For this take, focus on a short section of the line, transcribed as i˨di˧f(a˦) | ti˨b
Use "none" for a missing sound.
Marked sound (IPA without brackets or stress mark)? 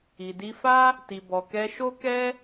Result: a˦